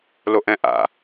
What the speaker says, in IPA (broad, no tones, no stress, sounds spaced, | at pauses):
l o ʔ ɛ̃ ʔ a̰